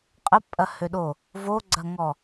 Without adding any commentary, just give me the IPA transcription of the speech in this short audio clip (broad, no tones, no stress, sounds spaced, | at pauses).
qʼ ə pʼ ɐ h ø ɗ o | v o ɡ͡ǀ ɐ ŋ ɔ